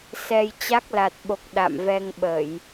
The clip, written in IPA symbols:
s ɛ˧ j t͡ɕ a˦˥ k̚ l a˨˩ t̚ ɓ o˨˩ k̚ ɗ a̰˧˨ m v ɛ˧ ŋ ɓ ə˧˩˨ j

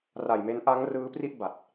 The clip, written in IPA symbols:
r a˨˩ j m e˦˥ n ʔ a˦˥ ŋ r ɯː˦˥ p r i˥˩ ʔ b a˨˩ t̚

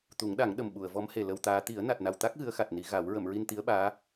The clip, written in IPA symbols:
t̪ u˨˩˦ ŋ ɗ a˨˩˦ ŋ ɗ ə˨˩ m ɓ u˨˩˨ ə̯ v ɔ˧˥ m h e˨˩ l ə˧ w t̪ aː˧˥ t̪ i˨˩˦ ə̯ n a˨˩ t̚ n a˨˩ w t̪ a˦˥ k̚ ɣ ɨ˧˥ ə̯ x a˨˩ t̚ n i˨˩˦ ɣ a˨˩˦ w ɹ ə˨˩˨ m ɹ i˧ n t̪ i˧˥ ə̯ ɓ aː˧˥

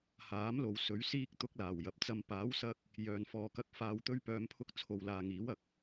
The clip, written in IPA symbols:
h aː˨˥ m l o˨ w s ɵ˨˥ ɥ s iː˥ k̚ t̪ ʊ˥ k̚ l aː˨˩ w j ɐ˨ p̚ t͡s ɐ˨ m p aː˨˥ w s ɐ˧ k̚ | j œː˨ n f ɔː˨ k ɐ˧ k̚ f aː˨ w t̪ ɵ˧ ɥ p œː˨˧ m pʰ ʊ˧ k̚ t͡sʰ o˨ w l aː˨ ŋ iː˨˥ w ɐ˨ k̚

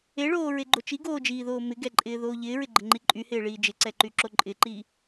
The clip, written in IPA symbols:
e ɭ oː ɹ e ɡ͡ǃ o t͡ʃ i ɡ oː d͡ʒ iː ð oː m ɪ ɡ ɛ ǃʼ ɪː ð oː ʎ ɪː ɹ ɪ ɡ͡ǃ ə ŋ͡ǃ i ǃʼ y h ɪː ɭ iː d͡ʒ ɪ ǀ ɛ ǃ y ǁ o ǃʼ ɪ ǃ iː

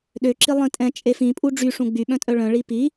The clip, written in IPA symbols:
ɗ ø ǁ i lˠ ĩ tʼ ɛ̃ t͡ʃʼ e f ĩ pʼ u ɖ͡ʐ y ʂ ũ ɡ͡b y ɓ œ̃ tʼ œ ɭ œ̃ ɭ i p i

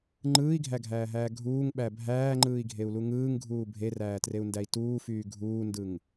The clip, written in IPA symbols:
ŋ͡ǃ ɯː i̯ ɡʱ æ ɡʱ æː ɦ æː ɡʱ uː ŋ ɓ æ bʱ æː ŋ͡ǃ ɯː i̯ ɡʱ e u̯ l u ŋ ɯː ŋ ɡʱ uː bʱ e r æː t r e u̯ n d æ i̯ t uː f yː ɡʱ uː n d ɯ ŋ

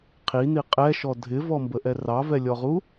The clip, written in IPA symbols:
qʰ i n i qʼ ɛ ʃ ɔ dʱ ɪ v ɔ m b ə ʔ ɛ r ɑ v ɛ lʲ ɔ ʁ u

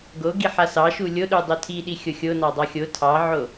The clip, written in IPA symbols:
ɡ o ɡ i ħ a s ɑ ʃ u lʲ o ɗ u dˤ o tʰ i ɗ i xʲ o xʲ o n ɑ dˤ ɑ xʲ o tʰ ɑ ʕ o

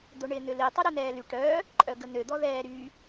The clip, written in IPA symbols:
d̪ o ɳ ɪː n̪ ʏ l i tˤ œ ɾ œ n̪ ɛː l y ʈ œ | ǃʼ œ ɡ ə n̪ ø d̪ ɔ ð ɛː ɾ y

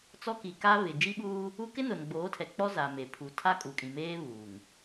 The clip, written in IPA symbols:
t͡s ɔ˦ k i˨ k a˦ β ɪ˨ d͡ʒ i˦ ɓ uː˦ | u˦ k ɪ˦ n ʊ˨ n ɡ͡b oː˨˦ tʰ ɛ˨ k͡p ɔ˦ z a˨ m e˨ pʰ u˨˦ tʰ a˦ kʼ u˨ kʼ ĩ˨ m eː˦ β uː˨ ŋ

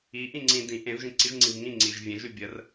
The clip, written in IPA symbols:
i ʔ ĩ ŋ͡ǀ ĩ d ĩ ʔ ẽ v ʒ ĩ ǀ i ʒ ŋ͡ǀ ĩ v ŋ ĩ ŋ͡ǀ i ʒ vʲ ẽ ʒ ʉ bʲ ə r

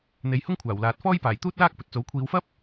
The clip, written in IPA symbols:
n̪ e˨˧ j h ʊ˥ ŋ kʷʰ aː˨˩ w l aː˨ t̚ f ɔː˥ j p aː˨˩ j t̪ uː˥ t̚ l aː˥ k̚ p ɵ˨ t̚ t͡s o˨˥ w kʷʰ iː˨˧ w f ɐ˥ p̚

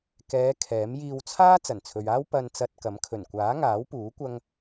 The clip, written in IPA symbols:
k ɛː˨˧ kʰ ɛː˨˥ m j iː˧ w t͡sʰ aː˥ t͡s ɐ˨˩ n t͡sʰ ɵ˨ ɥ aː˥ w p ɐ˧ n t͡s ɐ˧ t̚ k ɐ˨˥ m kʰ ɵ˨˩ n kʷ aː˨˥ ŋ aː˨˥ w p uː˨˥ kʷ ɐ˥ ŋ

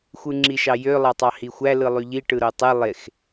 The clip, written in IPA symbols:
xʷ ɯ ŋ͡ǁ i ʃ ɑ j ø lˠ ɑ tˤ ɑ h i xʷ æ l ɯ lˠ y ʎ i ʈ ɯ ɾ o tˤ e lˠ e x

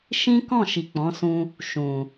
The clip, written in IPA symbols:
ʃ ĩ˦ k ɔ̃˦˨ ʃ i˨ k͡p ɔ̃˨˦ s ũ˧ | ʃ ũ˨

